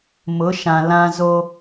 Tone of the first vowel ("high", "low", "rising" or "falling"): rising